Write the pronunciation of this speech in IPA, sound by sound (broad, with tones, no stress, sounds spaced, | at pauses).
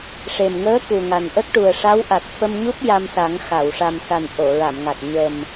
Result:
ʂ e˨˩ m ŋ əː˧˥ k u˨˩ ŋ a˨˩ n ʔ ə˦˥ k̚ ʈ u˨˩ ə̯ ʂ a˧˥ w ʔ a˨˩ t̚ f ə˧ m ɲ u˦˥ p̚ j a˧ m s a˨˩˦ ŋ x a˨˩˨ w ʂ a˨˩ m s a˨˩ n ʔ o˨˩˨ ɹ a˨˩˨ m ŋ a˨˩ t̚ ɲ ə˨˩ m